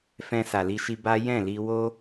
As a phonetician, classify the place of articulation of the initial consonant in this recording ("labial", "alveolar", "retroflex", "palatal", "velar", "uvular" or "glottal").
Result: labial